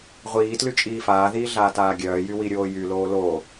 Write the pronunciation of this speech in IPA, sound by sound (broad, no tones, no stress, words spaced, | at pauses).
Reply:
ʁʷiːtly t͡ʃʼiːfaːðiː ɮaːtaːɡʲœːjy wiɾʲoːjyloː lo